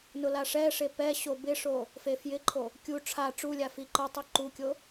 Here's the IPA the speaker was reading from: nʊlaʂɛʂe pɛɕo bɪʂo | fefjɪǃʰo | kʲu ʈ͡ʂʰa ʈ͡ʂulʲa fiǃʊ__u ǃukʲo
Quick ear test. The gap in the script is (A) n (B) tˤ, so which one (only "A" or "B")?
B